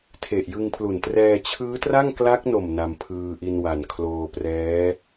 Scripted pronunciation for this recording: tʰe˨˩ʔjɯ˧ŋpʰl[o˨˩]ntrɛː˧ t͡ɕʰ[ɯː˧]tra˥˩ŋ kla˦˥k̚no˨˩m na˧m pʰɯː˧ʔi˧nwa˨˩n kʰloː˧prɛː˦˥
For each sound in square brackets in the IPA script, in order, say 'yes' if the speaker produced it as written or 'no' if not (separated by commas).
no, no